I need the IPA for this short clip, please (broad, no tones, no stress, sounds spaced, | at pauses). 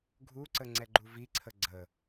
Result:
ɡʱ u ǀ ə ŋ͡ǀ ɛ ɡ͡ǃ u v i ǀʰ ə ɡ͡ǀ ə